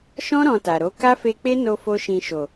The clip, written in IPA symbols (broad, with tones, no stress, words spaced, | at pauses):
ʃɔ̃˦ ɾɔ̃˧ta˨ɾo˨˦ ka˦fe˧k͡pe˦no˧ fo˦ʃĩ˧ ʃo˨